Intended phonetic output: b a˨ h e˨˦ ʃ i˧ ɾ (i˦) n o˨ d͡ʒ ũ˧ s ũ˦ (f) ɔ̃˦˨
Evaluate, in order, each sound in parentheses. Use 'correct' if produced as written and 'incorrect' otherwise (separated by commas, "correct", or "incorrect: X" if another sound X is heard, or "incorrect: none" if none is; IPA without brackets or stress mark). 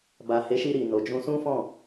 incorrect: i˨, correct